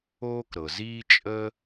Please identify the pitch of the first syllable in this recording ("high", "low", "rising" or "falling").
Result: high